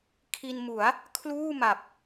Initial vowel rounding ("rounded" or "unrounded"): unrounded